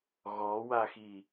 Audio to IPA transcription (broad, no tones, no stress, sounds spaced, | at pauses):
ɣ ɔ w a x i